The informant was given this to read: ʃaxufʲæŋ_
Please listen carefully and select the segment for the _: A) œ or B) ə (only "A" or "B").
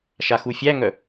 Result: A